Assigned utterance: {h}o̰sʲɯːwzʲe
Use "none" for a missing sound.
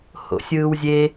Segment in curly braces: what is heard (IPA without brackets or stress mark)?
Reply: h